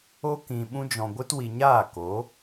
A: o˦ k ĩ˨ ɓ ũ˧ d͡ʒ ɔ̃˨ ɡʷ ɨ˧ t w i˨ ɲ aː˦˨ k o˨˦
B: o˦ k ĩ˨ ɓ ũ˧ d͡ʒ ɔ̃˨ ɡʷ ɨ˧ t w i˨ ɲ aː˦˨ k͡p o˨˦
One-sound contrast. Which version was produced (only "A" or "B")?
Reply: A